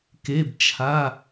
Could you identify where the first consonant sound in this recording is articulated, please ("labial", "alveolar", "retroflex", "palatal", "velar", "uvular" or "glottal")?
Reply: velar